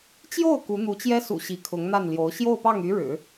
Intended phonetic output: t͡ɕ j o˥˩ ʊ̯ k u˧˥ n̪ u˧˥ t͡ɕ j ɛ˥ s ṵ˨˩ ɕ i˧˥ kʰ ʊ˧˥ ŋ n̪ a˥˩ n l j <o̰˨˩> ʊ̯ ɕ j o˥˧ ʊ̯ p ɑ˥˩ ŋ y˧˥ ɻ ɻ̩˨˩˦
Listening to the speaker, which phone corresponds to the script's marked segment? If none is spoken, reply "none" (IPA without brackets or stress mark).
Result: o˧˥